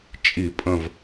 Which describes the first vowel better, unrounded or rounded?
unrounded